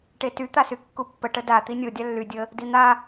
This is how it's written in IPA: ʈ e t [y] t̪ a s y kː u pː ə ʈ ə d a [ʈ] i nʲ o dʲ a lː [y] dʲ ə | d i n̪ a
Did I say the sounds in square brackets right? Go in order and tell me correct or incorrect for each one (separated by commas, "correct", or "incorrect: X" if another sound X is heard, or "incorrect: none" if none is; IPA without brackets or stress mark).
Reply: correct, incorrect: t̪, correct